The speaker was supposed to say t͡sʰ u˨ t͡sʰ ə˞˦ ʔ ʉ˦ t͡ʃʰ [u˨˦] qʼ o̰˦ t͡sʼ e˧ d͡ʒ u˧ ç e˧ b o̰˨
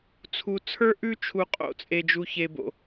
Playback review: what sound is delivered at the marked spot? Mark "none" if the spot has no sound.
u˧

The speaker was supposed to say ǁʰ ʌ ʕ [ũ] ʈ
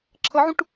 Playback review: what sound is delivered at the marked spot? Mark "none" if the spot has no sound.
ũ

